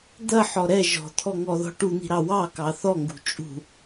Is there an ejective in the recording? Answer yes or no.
yes